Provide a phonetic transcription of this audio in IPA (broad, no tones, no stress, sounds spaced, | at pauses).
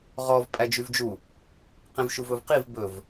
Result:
ʁ ɔ v pʼ æ d͡ʒ y v d͡ʒ u | q ĩ v ʃ u v ɵ v q i v b ɵ v